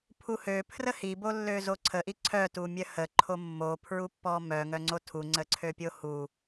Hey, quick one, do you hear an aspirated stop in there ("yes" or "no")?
yes